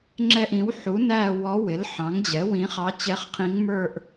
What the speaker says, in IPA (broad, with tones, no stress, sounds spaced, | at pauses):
ŋ͡ǁ ɛ˦˨ ʔ ĩ˩˥ w ħ u˩˥ n æ˦˨ w ɔ˧˥ w ɪ˩˥ l ħ ɑ̃˩˥ ŋ d͡ʑ ɛ˩˥ w ĩ˧˥ χ ɑ˧˥ t͡ɕ ɛ˧˥ χ qʰ ĩ˧˥ ŋ m ə˞˦˨ ʔ